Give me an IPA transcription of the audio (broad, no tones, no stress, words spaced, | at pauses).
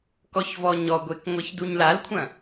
kɔçvɔɲɔɡʷek ŋʷeçduɲlalkʷʰɐ̃